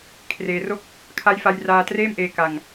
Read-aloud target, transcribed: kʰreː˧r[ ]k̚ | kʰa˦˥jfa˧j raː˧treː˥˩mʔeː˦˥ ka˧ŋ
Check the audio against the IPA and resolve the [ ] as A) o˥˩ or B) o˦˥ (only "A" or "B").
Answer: A